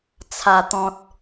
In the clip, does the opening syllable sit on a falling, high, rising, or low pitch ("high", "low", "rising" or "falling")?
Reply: low